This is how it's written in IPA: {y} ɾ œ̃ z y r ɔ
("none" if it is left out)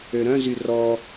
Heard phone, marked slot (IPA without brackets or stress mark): ø